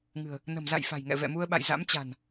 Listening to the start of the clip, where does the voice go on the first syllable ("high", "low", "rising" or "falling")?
low